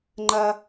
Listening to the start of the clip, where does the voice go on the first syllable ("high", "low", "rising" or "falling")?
high